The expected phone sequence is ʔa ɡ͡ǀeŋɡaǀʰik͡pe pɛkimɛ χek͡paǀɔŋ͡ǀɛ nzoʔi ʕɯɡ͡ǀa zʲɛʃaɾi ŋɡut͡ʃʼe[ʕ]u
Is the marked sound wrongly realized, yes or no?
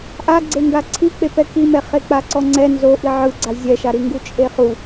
yes